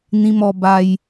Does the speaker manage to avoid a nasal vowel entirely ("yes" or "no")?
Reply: no